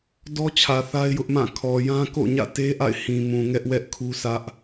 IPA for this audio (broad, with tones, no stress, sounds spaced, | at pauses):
d ɔ˦ t͡ɕʰ ä˨ θ a˦ ɪ̯ j ʊ˦ ʔ m ã˦˨ kʰ ɔ˨ j ã˦ k o̰˦˨ ɲ ä̰˦˨ t e˦ ʔ a̰˦˨ ɪ̯ h ĩ˨ m ũ˨ ŋ ɛ˦ ʔ w ɛ˦ ʔ kʰ u˦ sʰ ä˦ ʔ